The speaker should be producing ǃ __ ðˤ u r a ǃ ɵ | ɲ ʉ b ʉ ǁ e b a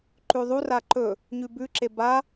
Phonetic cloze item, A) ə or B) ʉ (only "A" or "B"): B